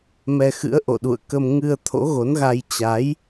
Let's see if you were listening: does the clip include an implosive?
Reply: yes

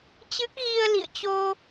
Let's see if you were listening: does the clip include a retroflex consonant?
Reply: no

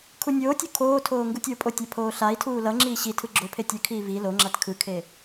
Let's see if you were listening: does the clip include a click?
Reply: yes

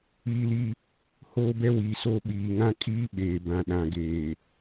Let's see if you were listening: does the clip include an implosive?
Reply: yes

